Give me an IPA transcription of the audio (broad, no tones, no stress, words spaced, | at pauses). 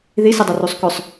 ðisidˤɛrusˤ kɵsˤ